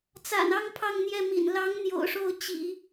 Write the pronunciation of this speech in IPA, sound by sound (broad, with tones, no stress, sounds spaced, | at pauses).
t͡s a̰˨˩ n ɑ˥˧ ŋ pʰ ɑ˥˧ ŋ n̪ j ɛ˥˩ m ḭ˨˩ n l ɑ˧˥ ŋ n̪ j o̰˨˩ ʊ̯ ʂ o˥˩ ʊ̯ t͡ɕ ḭ˨˩˦